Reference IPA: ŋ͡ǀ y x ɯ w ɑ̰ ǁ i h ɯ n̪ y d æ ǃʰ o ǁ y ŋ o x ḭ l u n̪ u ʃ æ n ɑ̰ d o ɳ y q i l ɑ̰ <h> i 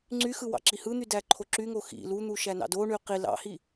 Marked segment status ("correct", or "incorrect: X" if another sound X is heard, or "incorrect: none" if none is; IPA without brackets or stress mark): correct